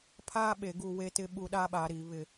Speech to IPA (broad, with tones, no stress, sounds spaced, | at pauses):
pʰ aː˦ ɓ e˨ ɡ u˦˨ w e˦ t ɪ˦ ɓ u˦ ɗ aː˦ ɓ aː˨ ɾ iː˨ β ɪ˦˨